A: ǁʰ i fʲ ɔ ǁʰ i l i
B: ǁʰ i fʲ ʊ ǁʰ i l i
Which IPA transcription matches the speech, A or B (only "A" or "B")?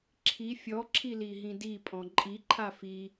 A